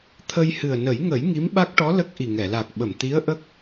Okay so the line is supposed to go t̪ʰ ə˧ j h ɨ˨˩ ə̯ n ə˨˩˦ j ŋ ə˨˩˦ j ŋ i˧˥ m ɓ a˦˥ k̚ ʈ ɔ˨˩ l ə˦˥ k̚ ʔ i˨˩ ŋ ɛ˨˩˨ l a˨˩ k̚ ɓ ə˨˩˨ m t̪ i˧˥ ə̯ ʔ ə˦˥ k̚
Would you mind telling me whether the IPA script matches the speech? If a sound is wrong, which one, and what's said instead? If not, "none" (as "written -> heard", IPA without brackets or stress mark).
ɔ˨˩ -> ɔ˧˥